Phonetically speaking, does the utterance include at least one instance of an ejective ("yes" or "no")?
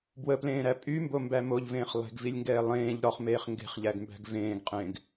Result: yes